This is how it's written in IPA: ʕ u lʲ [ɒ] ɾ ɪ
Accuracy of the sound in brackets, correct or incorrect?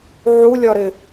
correct